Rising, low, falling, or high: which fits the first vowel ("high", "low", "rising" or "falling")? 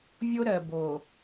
high